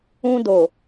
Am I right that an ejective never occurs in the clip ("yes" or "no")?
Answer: yes